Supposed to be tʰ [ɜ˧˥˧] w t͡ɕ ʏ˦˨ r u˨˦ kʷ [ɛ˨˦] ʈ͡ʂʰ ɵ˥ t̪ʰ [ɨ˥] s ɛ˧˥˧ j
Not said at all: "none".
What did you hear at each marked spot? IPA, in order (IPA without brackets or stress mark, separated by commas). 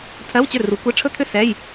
ɜ˧˥˧, ɛ˧˥˧, ʏ˥